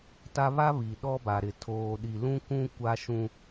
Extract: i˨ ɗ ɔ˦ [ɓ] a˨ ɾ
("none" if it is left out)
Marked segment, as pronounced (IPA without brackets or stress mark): b